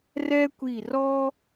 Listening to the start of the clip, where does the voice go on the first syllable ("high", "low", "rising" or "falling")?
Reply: high